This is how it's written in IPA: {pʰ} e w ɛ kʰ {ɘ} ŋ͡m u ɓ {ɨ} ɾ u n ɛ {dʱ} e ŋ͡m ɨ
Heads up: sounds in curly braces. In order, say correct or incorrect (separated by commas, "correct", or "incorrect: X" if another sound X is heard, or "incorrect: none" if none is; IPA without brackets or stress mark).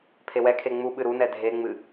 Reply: correct, incorrect: e, correct, correct